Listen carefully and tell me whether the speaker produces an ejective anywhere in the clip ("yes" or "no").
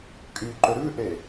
yes